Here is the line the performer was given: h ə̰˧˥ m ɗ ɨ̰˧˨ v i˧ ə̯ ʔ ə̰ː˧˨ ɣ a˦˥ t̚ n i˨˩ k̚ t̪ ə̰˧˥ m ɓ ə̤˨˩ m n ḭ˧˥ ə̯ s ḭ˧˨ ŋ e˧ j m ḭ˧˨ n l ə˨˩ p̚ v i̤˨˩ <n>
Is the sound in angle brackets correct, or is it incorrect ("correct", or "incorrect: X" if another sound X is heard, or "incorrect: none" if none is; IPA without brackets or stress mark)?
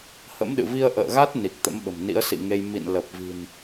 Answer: correct